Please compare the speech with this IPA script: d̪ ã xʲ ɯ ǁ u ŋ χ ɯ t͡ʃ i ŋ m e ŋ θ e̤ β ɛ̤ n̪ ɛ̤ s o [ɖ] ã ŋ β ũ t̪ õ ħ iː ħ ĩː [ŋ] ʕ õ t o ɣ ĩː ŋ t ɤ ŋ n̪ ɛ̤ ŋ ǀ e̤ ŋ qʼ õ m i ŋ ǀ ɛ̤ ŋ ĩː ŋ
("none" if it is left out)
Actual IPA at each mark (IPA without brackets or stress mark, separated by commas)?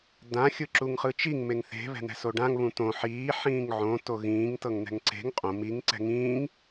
ɖ, ŋ